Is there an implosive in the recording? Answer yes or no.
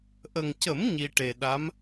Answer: yes